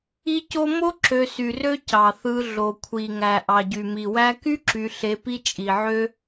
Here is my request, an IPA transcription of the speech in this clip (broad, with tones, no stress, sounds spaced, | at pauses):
i˦ c o˦ m o˥ ǁ ø˨ s y˩ r ø˦ c ɑ˩ θ ɯ˨ ɮ o˩ kʷʰ i˩ ŋ æ˩ ʔ ɑ˩ ɟ y˩ m i˩ w æ˦ k y˥ ǁ y˨ ɬ e˨ p i˦ t͡ʃʼ i˩ ʕ ø˥